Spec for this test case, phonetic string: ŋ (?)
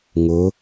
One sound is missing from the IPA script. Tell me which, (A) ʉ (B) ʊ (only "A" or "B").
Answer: B